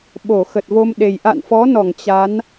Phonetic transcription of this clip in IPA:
ɓ o˧˩ x ə˨˩ t̚ v o˧ m ɗ e˨˩ j ʔ a̰˧˨ n f ɔ˨˦ n ɔ˧˩ ŋ t͡ɕ a˨˦ n

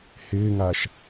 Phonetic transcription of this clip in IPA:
h ɪː ŋ aː ʃ

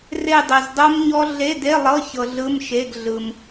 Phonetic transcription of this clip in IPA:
r e˥˧ dˤ e˧ z dˤ o˦˥ m ɲ ɔ˦˥ ɮ e˧˥˧ d e˧˥˧ lˠ ɤ˧˥˧ ç ɤ˧ ɮ ɯ˧˥˧ m ʃ e˧˥˧ ɡ ɮ ɯ˧ m

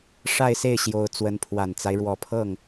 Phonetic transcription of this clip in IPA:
ʂ a˥˧ ɪ̯ s e˥˩ ɪ̯ ɕ j o˧˥ ʊ̯ t͡s w ə˧˥ n pʰ w a˨˩ n t͡s a˦ ɪ̯ ɻ w ɔ˨˩ pʰ ɤ˥˩ ŋ

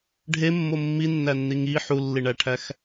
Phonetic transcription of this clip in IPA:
ɖʱ e mː o mː i nː æ nː i ŋ i ħ u lː i ɳ æ ʈʰ æ x

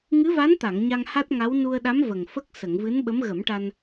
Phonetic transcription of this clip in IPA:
ŋ ɨ˧˥ v a˧˥ n t̪ a˨˩˨ ŋ ɲ a˧ ŋ h a˦˥ t̚ ŋ a˧˥ w n u˧ ə̯ ɗ a˧˥ m v ə˨˩ ŋ f ə˦˥ k̚ s ə˨˩˨ ŋ v ɨ˧˥ n ɓ ə˧˥ m ɣ ə˨˩˦ m ʈ a˧ n

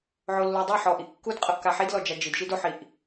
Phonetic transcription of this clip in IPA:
ʕ o lː o dˤ ɤ ħ ɔ ʔ i ʔ kː u d qʼ ɤ ʔ k a ħ i d l ɔ d͡ʒ a d͡ʒ i d ʃ i d o ħ i ʔ

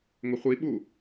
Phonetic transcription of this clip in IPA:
ŋ ʊ χʷ i ɓ u

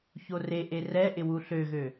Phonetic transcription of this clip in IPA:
ç o r e ʔ e r ɛ ʔ ɪ w u ɬ ø ɣ ø

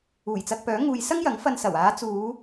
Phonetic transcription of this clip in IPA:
uː˨˩ j t͡s ɐ˧ k̚ p œː˨˥ ŋ uː˧ j s ɐ˥ ŋ j ɐ˨˥ ŋ f ɐ˧ n s ɐ˨˩ w aː˨˧ t͡s uː˨˧

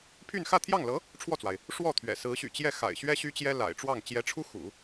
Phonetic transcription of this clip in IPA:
pʰ y˥˧ n x ä˥˧ t̪ʰ j ɑ˥˩ ŋ l ɤ˧˥ | ʈ͡ʂʰ w ɔ˥˩ t͡s w a˩ ɪ̯ | ʂ w ɔ˥˩ t̪ʰ ɥ ɛ̰˨˩ s ɹ̩˧˥ ɕ y̰˨˩ t͡ɕ j ɛ˥˩ x a̰˨˩ ɪ̯ ɕ ɥ ɛ˥ ɕ y˥ t͡ɕ j ɛ˥ l a̰˨˩ ɪ̯ ʈ͡ʂ w ɑ˥˩ ŋ t͡ɕ j ɛ˧˥ ʈ͡ʂʰ u˥ x ṵ˨˩˦

